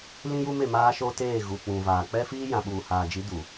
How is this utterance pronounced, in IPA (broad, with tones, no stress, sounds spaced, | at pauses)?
l ĩ˦ j u˦ m e˦˨ m aː˦ ʃ o˦ t eː˦˨ ɣ u˨ k͡p ũ˨ v aː˨ k͡p ɛ˦ f iː˦ j ã˨ ɓ uː˨ h aː˨ d͡ʒ i˨˦ d u˨